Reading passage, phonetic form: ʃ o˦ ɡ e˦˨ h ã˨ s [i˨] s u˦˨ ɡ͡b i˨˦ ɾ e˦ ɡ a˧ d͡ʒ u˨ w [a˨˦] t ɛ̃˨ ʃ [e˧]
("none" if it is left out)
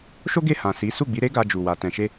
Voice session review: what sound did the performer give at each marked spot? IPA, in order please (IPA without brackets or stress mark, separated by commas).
i˨˦, a˨, e˧